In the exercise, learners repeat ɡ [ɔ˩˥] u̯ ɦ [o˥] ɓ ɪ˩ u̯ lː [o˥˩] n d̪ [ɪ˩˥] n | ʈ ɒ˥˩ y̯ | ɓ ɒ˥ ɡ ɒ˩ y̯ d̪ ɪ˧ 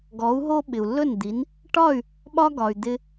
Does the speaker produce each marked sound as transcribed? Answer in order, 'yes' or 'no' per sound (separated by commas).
yes, yes, no, no